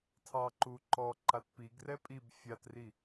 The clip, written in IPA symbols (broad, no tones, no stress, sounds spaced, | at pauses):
tʰ ɑ ǃ u ǃ ɔ ǃ a t p i ɡ r ɛ pʼ i b fʲ a t r i